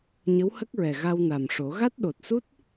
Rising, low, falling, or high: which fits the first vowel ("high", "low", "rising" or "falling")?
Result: rising